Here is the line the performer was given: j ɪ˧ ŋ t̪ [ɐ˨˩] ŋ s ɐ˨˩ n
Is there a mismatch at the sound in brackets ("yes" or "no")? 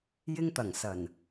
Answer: no